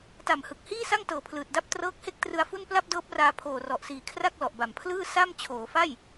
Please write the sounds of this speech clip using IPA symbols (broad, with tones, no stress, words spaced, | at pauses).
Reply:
ta˨˩mhɯ˨˩k̚hiː˥˩ sa˥˩ŋtɤː˩˦pʰlɯː˨˩t̚da˥˩p̚ trɤː˦˥k̚he˥˩k̚trɯ˧a̯fu˥˩n pla˥˩p̚dɤː˦˥p̚raː˧ pʰoː˨˩rɔ˨˩ʔsiː˨˩ kʰra˥˩k̚lɔ˨˩ʔba˨˩mpʰlɯː˥˩ sa˥˩m t͡ɕʰoː˩˦fa˥˩j